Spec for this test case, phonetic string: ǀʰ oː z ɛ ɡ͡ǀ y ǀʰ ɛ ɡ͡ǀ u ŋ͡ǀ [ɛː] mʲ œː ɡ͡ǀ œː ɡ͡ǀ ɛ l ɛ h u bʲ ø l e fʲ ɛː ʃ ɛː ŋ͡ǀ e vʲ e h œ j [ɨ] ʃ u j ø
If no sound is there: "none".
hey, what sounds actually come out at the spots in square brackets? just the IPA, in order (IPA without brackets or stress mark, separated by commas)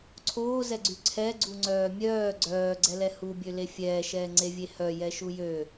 œː, ɛ